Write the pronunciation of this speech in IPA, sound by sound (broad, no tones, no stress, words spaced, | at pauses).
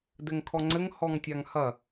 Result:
dɘŋkʰɔŋ͡ǀɘŋ hɔŋtʲaŋhɐ